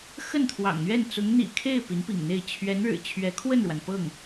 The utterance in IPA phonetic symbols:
x ə˥˩ n t̪ʰ w ɑ̰˨˩ ŋ n̪ ɥ ɛ˥˩ n t͡s ʊ˧˥ ŋ n̪ ḭ˨˩ kʰ e˥˩ ɪ̯ p i˧˥ n p ḭ˨˩ ŋ n̪ e˥˩ ɪ̯ t͡ɕʰ ɥ ɛ˧˥ n ɻ ɻ̩˨˩ t͡ɕʰ ɥ ɛ˧˥ kʰ w ə˥˩ n ɻ w a˩ n p ɤ˥˩ ŋ

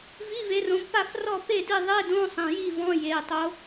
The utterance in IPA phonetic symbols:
v i˧˥˧ v e˨˦ r õ˨˦ b p a˥˨ f r ɔ˥˨ p e˥˨ d i˥˨ ðˤ e˧˥˧ d õ˧˥˧ sˤ ẽ˩˧˩ j i˥˨ v ɔ̃˧˥˧ j e˩˧˩ tˤ o˨˦

